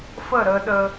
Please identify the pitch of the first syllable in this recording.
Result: falling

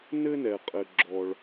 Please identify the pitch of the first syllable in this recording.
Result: high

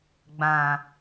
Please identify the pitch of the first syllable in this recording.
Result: low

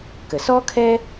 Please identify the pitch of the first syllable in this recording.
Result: low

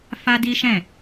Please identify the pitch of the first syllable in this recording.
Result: high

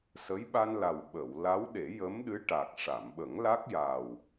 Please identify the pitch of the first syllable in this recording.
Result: rising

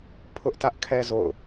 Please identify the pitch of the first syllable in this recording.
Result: high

